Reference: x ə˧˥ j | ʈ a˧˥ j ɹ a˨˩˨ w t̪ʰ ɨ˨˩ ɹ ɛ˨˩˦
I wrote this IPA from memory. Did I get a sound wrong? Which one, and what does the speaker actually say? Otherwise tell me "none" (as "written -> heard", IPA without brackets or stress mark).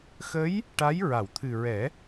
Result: none